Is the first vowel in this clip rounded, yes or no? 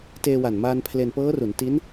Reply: no